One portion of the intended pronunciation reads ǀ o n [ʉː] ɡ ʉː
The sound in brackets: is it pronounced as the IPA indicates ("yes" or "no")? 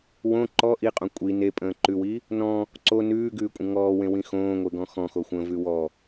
yes